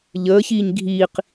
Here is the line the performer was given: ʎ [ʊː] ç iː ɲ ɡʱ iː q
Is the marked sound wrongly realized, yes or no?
yes